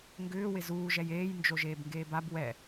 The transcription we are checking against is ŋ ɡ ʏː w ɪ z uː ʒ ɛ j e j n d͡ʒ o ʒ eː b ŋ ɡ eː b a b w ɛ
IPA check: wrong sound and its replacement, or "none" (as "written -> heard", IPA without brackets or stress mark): e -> eː